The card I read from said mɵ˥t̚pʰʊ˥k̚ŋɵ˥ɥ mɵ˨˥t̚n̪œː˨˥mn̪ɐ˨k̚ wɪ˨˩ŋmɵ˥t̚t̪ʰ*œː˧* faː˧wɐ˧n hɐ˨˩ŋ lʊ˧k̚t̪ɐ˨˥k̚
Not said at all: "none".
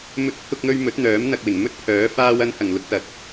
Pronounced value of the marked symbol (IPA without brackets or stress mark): œː˨˥